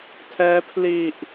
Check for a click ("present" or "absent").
absent